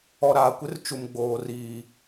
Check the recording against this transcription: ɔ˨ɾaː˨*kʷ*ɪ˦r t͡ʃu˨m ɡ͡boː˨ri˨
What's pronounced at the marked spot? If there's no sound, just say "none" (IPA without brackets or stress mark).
kʷ